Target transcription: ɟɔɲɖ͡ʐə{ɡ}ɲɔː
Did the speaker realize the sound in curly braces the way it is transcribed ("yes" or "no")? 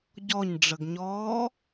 yes